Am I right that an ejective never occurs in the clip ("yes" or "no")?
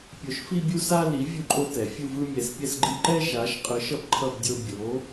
no